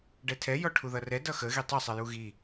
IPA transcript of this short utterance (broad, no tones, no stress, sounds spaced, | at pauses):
ɖ ɛ tʰ ɛ j ɔ ʈʰ u ð ʌ r ɛ d ʌ x ə ɣ i tˤ ʌ sˤ e j u ɣ i